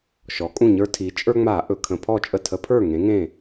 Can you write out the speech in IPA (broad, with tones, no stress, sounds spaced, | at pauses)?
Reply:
ʃ ɔ˩˧ kʼ ũ˥˩ ɲ ə˞˦ tʰ i˩˧ t͡ʃʼ ə˞˦ ŋ͡m a˧˩˧ ʔ ɵ˨˩ kʰ ə̃˧˩˧ pʰ ɔ˥˩ t͡ʃʼ ə˥˩ tʰ ə˨˥ pʰ ə˞˥˩ ŋ ẽ˨˥ ŋ ẽ˥˩